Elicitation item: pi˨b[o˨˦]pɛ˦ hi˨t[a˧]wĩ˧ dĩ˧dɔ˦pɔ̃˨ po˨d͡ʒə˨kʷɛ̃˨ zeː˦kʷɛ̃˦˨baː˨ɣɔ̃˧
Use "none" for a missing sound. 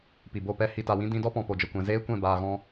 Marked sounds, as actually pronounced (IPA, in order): o˦˨, a˨

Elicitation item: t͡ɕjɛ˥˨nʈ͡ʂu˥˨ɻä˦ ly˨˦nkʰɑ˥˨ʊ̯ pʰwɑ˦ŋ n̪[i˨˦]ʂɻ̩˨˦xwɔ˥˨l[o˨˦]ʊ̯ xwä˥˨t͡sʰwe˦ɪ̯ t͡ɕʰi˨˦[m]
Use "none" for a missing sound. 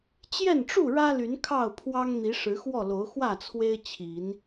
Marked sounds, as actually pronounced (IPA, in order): i˨˦, o˨˦, n

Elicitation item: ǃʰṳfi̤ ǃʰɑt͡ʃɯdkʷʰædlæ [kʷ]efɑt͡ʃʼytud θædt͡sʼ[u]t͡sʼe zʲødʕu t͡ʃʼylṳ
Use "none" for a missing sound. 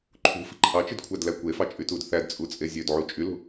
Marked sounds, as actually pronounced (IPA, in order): kʷ, u

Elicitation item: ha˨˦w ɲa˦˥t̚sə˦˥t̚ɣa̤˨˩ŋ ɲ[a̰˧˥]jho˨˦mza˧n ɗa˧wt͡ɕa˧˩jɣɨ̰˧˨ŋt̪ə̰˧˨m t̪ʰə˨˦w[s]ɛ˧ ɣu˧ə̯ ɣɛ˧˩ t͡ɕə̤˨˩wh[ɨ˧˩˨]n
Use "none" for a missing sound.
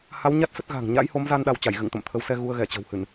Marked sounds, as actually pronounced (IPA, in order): a̰˧˥, s, ɨ˧˩˨

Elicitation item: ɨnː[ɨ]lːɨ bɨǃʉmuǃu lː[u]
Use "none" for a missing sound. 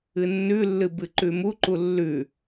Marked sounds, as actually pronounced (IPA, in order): ʉ, ʉ

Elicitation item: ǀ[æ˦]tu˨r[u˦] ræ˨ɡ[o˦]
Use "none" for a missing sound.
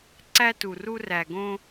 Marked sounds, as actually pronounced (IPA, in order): æ˦, u˦, õ˦

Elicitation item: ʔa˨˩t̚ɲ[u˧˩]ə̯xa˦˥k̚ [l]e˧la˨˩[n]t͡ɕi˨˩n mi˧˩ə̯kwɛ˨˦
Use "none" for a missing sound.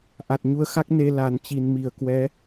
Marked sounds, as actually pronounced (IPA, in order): u˧, n, n

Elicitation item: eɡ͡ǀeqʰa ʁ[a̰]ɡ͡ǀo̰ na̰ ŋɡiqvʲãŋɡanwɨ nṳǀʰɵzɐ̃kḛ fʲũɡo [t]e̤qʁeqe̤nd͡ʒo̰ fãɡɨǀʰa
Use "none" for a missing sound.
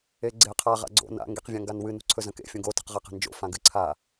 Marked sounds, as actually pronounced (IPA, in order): a̰, t

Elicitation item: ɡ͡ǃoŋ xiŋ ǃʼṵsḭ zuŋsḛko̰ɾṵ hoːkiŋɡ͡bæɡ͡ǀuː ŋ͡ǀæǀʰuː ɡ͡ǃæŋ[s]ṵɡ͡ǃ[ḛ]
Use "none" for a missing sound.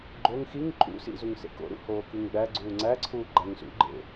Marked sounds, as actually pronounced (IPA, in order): s, ḛ

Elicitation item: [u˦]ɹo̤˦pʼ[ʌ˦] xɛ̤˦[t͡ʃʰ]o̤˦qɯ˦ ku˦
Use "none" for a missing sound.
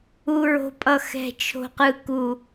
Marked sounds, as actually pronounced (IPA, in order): u˦, ʌ˦, t͡ʃʰ

